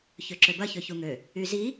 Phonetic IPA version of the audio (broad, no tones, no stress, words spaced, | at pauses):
çøǁøbɐ çøçuŋø | yzi